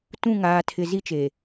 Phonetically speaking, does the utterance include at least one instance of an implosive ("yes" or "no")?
no